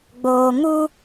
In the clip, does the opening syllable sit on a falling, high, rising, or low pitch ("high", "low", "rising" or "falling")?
low